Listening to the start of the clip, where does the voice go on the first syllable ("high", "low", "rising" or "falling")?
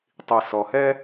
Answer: low